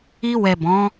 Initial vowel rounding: unrounded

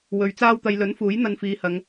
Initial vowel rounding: rounded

